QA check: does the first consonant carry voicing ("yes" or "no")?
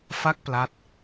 no